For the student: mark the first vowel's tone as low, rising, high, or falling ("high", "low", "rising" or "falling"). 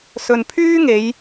low